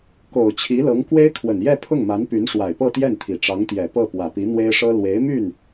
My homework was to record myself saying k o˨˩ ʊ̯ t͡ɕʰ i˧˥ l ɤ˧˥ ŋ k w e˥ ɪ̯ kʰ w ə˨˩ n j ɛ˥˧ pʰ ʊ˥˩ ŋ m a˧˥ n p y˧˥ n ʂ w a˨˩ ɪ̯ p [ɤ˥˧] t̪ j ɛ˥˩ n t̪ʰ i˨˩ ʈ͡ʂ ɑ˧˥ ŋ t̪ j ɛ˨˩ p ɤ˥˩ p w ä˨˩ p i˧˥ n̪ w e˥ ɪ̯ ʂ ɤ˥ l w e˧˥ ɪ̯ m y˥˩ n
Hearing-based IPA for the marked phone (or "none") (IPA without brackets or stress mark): ɤ˥˧